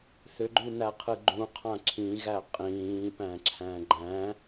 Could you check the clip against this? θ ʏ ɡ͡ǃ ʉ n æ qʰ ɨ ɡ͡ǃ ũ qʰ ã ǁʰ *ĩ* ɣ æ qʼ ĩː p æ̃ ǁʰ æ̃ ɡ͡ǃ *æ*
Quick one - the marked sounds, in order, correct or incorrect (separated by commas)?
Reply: correct, incorrect